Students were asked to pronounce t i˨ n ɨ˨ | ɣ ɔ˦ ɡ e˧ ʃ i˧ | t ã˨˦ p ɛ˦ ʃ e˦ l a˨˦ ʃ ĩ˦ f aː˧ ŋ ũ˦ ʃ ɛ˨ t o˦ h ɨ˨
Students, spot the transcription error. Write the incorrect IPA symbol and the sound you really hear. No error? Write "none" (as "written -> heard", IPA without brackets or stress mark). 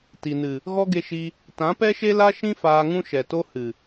a˨˦ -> a˦